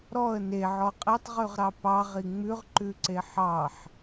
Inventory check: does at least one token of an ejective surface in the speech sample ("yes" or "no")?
yes